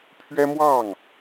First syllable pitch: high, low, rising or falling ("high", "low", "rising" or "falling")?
high